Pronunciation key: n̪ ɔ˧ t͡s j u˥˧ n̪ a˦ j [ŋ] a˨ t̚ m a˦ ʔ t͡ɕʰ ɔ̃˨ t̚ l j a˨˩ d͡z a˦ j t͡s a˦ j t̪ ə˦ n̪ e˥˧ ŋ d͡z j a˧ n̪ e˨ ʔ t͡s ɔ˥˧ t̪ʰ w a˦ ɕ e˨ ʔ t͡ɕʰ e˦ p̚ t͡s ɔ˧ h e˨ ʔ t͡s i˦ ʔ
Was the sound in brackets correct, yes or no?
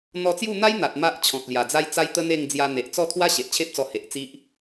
no